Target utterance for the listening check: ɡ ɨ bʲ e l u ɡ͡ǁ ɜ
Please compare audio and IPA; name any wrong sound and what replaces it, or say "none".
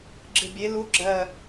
ɡ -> ɡ͡ǁ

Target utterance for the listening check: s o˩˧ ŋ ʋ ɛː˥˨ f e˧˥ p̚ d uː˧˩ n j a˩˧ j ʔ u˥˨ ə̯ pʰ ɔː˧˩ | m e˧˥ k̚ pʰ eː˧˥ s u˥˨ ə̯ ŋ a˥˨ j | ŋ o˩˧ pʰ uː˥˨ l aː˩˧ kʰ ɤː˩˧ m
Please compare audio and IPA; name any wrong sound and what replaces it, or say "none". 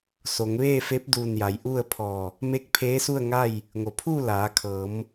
ɛː˥˨ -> eː˥˨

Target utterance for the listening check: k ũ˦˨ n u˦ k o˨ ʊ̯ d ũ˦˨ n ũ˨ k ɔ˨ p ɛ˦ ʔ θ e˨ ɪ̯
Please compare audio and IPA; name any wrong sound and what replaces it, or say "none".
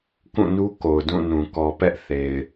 none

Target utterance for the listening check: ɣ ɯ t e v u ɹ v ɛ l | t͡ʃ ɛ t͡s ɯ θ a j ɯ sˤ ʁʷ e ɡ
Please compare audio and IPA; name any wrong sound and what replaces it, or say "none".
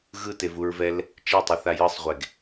t͡s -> tˤ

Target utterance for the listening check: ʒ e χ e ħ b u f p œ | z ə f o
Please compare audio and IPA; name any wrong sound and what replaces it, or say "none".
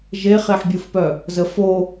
b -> bʲ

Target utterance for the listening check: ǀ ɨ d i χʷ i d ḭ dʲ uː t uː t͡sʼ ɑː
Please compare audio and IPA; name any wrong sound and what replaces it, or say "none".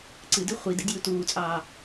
none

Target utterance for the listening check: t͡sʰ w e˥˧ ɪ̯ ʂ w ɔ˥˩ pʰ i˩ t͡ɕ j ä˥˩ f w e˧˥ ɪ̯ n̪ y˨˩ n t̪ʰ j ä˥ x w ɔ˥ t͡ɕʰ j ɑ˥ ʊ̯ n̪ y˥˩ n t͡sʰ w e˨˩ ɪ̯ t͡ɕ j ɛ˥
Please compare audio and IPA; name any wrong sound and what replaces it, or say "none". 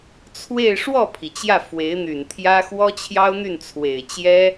none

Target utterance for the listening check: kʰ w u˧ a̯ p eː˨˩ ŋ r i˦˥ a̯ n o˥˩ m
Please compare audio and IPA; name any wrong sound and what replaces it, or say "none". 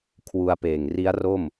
n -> r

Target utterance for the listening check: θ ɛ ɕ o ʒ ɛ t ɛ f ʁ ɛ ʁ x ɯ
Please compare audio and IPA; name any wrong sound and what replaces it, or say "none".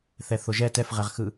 ɕ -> θ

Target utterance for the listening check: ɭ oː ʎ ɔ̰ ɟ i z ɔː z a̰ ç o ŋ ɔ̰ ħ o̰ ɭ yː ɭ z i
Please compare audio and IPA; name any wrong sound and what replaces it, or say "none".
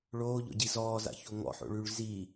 none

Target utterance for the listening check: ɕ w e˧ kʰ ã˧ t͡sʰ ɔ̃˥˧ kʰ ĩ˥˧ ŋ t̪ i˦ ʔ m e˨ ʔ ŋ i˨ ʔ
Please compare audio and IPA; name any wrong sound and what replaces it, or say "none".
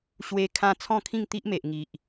none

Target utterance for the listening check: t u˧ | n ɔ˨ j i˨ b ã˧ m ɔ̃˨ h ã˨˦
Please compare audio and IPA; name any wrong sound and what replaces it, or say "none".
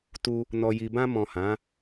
none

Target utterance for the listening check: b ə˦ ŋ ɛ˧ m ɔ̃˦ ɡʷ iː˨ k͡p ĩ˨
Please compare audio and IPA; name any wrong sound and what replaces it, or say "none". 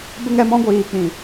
none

